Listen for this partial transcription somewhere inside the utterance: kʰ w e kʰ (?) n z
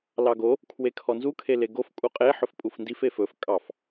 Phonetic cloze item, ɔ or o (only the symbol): ɔ